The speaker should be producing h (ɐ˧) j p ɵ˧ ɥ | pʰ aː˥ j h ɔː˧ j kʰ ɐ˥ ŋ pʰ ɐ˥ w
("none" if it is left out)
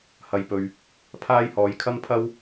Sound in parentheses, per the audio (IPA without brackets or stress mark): ɐ˧